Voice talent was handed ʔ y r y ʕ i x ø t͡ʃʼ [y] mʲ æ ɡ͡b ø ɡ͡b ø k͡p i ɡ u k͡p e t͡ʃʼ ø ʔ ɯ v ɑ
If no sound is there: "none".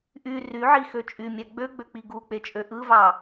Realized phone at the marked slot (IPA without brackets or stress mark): y